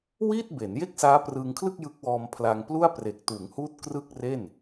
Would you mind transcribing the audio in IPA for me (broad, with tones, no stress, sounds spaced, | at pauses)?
w iː˥˩ t̚ b e˩˦ n j e˥˩ k̚ s aː˦˥ p r ɯː˧ ŋ kʰ l ɯ˥˩ k̚ j ɯ˦˥ k̚ w ɔː˧ m pʰ l a˧ ŋ p l u˥˩ a̯ p r e˨˩ k̚ t uː˩˦ ŋ h uː˦˥ t̚ k r ɯ˥˩ k̚ r e˥˩ n